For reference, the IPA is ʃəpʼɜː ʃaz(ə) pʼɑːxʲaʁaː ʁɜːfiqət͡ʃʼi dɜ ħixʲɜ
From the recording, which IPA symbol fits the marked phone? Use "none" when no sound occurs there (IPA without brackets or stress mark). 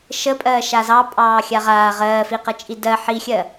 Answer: ɑ